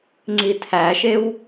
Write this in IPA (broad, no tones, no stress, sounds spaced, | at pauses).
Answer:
ŋ͡ǀ i tʰ æ ʃ e w